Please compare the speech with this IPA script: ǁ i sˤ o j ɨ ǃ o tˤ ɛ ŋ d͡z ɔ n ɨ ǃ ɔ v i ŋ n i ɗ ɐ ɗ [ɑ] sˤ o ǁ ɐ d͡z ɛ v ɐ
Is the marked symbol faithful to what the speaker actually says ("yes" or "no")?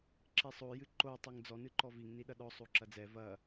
no